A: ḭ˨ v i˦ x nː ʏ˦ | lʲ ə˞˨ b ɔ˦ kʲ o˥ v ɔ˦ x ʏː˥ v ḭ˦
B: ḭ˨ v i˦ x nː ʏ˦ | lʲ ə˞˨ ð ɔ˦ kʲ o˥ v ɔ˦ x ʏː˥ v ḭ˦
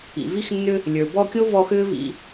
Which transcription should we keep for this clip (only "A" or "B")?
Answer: A